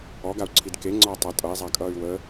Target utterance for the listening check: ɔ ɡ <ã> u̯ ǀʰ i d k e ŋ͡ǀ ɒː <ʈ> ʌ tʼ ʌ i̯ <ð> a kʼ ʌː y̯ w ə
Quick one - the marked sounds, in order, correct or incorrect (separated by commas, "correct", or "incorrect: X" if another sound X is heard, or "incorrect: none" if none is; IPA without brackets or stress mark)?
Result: incorrect: a, incorrect: tˤ, incorrect: zˤ